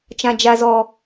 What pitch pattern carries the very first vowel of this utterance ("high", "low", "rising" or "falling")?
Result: low